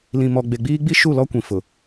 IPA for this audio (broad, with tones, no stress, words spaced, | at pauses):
lĩ˨mɔ˨ɡ͡be˨ɡ͡biː˦ ɡ͡bi˦ʃu˦˨ lɔ˦kʷĩ˨fʊ˨